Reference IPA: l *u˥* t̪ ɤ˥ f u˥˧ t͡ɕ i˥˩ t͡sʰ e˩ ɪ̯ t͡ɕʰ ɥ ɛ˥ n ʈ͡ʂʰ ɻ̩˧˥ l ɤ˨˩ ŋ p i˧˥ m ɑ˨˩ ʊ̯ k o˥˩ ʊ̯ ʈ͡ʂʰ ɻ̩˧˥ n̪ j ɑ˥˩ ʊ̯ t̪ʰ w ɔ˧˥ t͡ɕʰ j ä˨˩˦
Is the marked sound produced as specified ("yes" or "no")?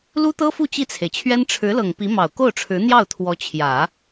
yes